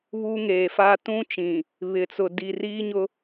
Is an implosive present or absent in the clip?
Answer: absent